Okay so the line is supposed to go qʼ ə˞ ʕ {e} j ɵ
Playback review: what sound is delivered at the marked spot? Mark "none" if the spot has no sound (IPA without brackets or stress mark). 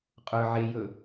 e